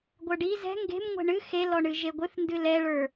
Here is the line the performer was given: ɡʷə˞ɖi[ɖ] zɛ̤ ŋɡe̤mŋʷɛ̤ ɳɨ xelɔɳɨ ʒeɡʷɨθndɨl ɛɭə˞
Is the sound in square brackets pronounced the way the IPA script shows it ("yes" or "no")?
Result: no